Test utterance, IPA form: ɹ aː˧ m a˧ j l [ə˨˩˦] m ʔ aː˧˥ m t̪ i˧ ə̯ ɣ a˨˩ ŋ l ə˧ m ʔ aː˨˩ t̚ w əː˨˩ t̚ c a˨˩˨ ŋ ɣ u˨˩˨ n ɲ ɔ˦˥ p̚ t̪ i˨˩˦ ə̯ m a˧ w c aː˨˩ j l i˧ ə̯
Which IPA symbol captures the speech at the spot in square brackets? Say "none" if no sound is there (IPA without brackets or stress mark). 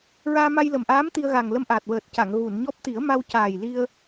ə˨˩